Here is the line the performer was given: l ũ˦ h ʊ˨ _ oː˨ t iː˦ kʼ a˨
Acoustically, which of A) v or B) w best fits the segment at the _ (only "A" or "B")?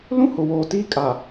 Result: B